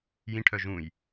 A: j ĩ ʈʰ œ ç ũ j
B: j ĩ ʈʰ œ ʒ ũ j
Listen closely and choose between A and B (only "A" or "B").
B